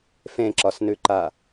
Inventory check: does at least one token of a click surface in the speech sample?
yes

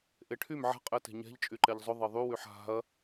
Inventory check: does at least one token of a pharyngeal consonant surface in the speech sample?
yes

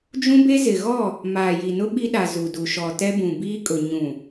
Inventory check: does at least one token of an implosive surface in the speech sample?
yes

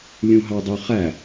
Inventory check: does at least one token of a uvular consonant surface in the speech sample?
yes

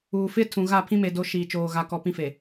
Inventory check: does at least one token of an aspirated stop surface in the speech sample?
yes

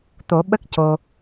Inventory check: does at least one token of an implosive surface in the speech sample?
yes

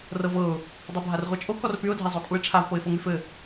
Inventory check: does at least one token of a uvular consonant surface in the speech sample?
yes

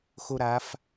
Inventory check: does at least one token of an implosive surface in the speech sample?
no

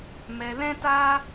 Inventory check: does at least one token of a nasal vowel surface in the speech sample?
yes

